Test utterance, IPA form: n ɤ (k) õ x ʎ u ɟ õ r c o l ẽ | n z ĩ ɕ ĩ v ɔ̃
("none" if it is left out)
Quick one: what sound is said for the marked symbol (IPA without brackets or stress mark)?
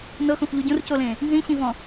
x